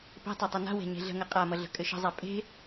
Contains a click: no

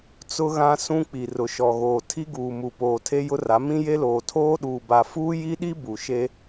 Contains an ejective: no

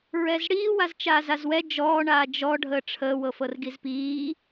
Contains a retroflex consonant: yes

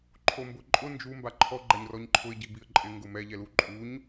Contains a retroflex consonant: no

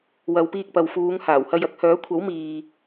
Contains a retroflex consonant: no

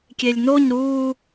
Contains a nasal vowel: no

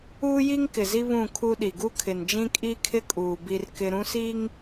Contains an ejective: yes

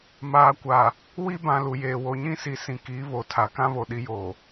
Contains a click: no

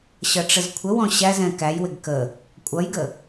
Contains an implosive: no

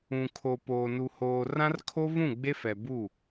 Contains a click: no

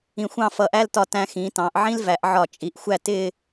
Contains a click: no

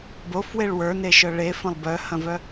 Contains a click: no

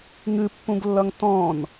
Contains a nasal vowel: yes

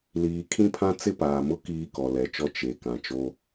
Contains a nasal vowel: yes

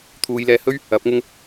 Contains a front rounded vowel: no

